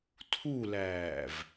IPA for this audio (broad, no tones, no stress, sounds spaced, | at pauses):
tʰ u l æː v